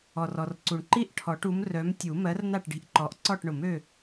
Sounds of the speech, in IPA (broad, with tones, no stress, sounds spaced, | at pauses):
ɔ˩ r ɔ˩ r ǀ u˩ ɳ ǃ i˥˨ ʔ ʈʰ ɔ˨˩˦ ʈ u˨˥ m r œ˨˥ m tʲ u˨˩˦ m ɜ˨˥ r n a˥˨ ʈ ɖ i̤˨˥ ʔ ǃ ɔ˨˩˦ ʔ ǀ ɔ˥˨ ʈ ɳ ʊ˨˩˦ m ø˥˨